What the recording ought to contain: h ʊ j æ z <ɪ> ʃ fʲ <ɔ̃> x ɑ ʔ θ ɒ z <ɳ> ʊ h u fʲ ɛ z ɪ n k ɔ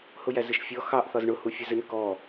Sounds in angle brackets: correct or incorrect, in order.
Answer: correct, incorrect: ɔ, correct

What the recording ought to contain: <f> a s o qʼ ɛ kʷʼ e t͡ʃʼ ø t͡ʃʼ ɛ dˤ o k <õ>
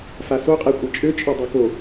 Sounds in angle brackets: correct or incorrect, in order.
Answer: correct, incorrect: o

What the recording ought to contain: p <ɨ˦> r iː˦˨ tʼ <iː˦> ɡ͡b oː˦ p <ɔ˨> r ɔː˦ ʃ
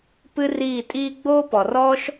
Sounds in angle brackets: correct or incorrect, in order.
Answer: correct, correct, correct

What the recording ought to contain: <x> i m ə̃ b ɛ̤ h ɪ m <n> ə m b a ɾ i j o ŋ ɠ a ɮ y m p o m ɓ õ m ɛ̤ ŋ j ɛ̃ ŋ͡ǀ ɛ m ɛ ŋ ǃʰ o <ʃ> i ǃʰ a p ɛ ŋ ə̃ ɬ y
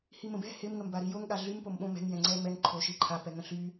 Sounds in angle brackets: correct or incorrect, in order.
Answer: incorrect: h, incorrect: ŋ, correct

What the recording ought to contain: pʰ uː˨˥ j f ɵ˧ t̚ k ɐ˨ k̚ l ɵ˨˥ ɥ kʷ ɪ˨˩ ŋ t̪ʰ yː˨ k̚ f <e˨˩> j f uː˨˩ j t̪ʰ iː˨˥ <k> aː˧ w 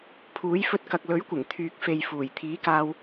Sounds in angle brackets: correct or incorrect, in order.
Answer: incorrect: e˨, correct

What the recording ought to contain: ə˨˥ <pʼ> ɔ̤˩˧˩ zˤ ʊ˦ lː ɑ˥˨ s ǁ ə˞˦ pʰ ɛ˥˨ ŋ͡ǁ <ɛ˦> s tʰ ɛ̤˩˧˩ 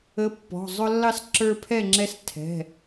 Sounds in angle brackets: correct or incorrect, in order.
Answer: incorrect: pː, correct

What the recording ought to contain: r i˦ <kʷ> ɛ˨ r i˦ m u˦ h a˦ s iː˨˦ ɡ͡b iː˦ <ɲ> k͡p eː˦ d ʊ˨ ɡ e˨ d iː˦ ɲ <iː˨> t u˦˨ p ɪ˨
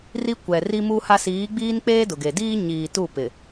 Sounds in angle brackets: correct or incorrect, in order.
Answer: correct, incorrect: n, correct

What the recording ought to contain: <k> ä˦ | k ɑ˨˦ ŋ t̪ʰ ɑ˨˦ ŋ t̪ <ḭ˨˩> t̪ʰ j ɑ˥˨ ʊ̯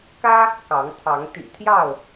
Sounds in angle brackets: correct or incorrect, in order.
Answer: correct, correct

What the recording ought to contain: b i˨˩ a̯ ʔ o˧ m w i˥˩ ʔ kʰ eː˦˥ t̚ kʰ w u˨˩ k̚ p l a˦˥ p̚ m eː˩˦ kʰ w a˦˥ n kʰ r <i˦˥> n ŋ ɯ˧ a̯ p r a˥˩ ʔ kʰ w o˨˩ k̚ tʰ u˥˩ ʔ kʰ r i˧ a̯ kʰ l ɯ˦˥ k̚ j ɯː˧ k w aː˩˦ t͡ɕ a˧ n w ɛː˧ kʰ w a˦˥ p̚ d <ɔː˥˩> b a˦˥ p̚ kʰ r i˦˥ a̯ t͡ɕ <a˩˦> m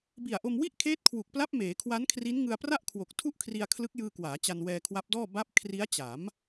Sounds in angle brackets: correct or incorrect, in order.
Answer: correct, correct, correct

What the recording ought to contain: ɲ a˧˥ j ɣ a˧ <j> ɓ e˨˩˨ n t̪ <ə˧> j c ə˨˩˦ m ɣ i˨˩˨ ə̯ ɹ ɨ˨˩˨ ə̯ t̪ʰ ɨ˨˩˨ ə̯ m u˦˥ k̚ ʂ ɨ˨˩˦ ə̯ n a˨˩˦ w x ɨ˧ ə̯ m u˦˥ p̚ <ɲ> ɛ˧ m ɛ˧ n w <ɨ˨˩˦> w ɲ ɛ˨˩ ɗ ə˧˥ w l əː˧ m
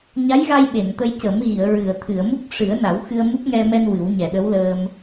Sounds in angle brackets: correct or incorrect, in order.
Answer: correct, correct, incorrect: ŋ, correct

